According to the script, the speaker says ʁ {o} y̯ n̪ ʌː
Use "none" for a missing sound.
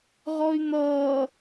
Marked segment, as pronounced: ɔ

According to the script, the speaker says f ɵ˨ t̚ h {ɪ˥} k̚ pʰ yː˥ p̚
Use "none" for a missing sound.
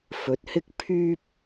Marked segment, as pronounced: ɪ˥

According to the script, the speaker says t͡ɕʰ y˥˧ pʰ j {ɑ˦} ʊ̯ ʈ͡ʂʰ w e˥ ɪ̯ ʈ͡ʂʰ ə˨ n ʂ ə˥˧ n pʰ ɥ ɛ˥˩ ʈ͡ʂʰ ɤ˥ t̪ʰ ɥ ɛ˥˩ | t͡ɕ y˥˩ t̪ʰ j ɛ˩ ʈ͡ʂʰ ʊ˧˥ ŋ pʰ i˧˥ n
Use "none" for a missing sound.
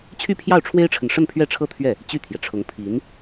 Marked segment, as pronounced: ɑ˥˩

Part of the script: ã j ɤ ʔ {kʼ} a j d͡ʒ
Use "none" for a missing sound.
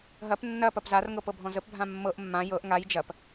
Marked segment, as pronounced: ŋ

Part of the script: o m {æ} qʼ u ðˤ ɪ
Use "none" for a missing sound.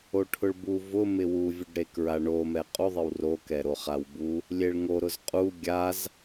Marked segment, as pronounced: ɛ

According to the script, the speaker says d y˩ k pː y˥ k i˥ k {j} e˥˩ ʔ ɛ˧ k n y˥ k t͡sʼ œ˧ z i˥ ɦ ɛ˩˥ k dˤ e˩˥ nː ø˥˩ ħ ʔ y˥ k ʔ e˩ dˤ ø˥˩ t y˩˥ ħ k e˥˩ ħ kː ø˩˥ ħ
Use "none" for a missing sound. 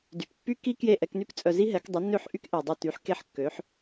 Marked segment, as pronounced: j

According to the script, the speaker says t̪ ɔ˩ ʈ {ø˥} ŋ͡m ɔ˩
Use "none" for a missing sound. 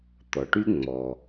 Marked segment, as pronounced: y˥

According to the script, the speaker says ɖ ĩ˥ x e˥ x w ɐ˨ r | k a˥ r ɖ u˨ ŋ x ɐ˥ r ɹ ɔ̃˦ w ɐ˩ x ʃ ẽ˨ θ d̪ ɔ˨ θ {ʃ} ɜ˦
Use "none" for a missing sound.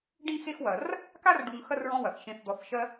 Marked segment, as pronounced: ʃ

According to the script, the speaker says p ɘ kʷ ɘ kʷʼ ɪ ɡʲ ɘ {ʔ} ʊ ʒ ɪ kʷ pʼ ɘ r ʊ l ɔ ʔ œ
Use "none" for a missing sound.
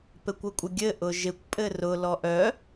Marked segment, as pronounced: ʔ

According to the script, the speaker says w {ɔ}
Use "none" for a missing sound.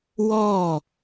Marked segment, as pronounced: ɔ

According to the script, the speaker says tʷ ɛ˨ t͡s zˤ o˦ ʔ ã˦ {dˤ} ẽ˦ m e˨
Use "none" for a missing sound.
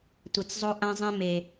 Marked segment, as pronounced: zˤ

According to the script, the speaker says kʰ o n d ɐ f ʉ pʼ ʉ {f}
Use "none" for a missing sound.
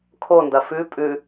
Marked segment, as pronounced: none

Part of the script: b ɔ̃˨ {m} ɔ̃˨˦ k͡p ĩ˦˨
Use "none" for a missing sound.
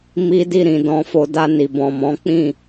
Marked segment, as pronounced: m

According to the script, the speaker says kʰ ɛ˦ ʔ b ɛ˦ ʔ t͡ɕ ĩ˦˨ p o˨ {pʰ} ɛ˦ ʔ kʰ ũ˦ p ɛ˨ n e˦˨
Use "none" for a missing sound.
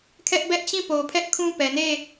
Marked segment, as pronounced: pʰ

